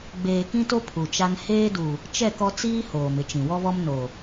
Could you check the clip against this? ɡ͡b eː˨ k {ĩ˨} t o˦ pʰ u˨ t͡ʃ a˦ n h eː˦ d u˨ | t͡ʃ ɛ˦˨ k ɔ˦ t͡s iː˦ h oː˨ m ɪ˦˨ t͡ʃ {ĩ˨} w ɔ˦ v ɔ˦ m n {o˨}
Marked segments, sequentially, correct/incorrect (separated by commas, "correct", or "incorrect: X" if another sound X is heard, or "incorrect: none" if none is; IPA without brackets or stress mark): incorrect: ĩ˦, correct, correct